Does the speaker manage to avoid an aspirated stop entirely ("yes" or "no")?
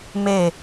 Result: yes